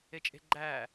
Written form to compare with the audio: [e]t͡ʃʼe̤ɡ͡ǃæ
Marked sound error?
no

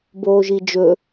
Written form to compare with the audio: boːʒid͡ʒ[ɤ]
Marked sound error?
yes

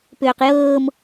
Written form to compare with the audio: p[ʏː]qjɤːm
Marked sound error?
no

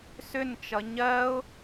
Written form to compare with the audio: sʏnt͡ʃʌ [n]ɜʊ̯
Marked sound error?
yes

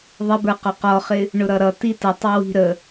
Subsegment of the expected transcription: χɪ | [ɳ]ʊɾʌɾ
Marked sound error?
no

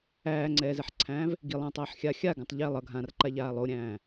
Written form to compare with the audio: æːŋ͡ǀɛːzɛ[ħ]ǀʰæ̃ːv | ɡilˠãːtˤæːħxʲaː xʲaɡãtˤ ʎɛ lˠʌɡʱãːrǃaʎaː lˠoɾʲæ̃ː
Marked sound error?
no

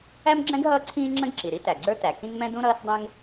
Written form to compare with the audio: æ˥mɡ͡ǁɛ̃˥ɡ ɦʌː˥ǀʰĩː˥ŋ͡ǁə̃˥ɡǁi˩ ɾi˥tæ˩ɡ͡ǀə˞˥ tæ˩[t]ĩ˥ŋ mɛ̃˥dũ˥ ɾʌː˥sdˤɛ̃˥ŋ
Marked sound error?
yes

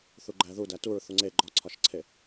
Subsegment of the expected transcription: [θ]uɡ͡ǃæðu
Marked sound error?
no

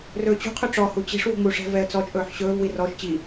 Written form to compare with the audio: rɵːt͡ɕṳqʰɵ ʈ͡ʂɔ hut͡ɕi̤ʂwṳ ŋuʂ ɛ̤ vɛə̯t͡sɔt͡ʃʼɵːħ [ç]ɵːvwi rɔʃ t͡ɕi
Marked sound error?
yes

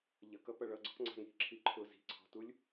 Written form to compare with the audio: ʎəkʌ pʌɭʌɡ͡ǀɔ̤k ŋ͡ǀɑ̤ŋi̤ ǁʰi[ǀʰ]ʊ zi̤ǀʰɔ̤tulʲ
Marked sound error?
yes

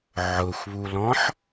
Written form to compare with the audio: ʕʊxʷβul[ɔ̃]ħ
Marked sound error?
no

